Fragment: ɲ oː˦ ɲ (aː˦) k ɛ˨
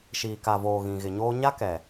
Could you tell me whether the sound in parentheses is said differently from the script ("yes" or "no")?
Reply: yes